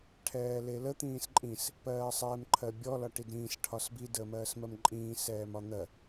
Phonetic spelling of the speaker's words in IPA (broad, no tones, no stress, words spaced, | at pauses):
ʈʰɛːlelə t̪ĩːsǃʼĩs | pɜːsˤɛːmǃʰɜbʲɔ lɒʈidɾĩːs ʈʰɒsbi dəːmɜːsmɜmǃʼĩː sɛːmɒn̪ɜ